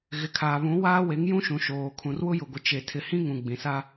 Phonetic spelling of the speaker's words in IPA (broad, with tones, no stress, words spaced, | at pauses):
ɣɪ˨kʰaː˨βũ˨˦ waː˦we˨˦ŋjũ˦ʃũ˨ ʃoː˨ kʰũ˨rwʊ˦jʊ˨ɡʷɪ˨ t͡ʃe˨ tʰɪ˨hĩ˦ ŋũ˨ɡ͡bĩ˨sa˦